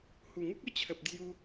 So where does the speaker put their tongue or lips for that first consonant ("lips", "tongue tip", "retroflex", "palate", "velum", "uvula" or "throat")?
throat